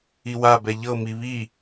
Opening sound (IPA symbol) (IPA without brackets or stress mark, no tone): i